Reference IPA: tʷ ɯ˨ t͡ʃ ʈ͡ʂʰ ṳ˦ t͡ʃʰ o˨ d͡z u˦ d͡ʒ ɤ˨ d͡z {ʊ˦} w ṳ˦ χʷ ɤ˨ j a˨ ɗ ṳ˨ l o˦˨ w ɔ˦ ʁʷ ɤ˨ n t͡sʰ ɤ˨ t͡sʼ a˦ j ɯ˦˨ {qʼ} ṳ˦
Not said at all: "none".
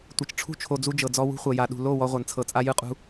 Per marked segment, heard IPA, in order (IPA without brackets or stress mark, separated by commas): ɔ˦, qʼ